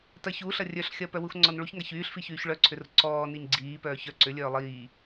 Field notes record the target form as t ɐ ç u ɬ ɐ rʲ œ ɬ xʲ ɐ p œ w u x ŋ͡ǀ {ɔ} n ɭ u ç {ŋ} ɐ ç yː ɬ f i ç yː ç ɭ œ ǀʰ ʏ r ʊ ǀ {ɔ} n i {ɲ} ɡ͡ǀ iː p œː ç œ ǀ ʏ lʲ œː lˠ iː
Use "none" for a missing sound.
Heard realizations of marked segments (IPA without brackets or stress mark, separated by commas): ɔ, ŋ, ɔː, ɲ